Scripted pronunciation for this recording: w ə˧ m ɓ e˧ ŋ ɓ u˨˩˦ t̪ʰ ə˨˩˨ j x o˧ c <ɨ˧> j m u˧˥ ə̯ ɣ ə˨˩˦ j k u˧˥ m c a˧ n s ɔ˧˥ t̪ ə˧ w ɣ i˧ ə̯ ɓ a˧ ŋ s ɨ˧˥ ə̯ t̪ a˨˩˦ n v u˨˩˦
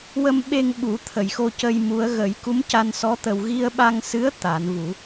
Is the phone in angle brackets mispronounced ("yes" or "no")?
yes